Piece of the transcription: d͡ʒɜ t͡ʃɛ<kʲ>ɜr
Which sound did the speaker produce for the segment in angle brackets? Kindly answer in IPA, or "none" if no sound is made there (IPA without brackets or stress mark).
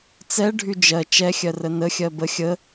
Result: xʲ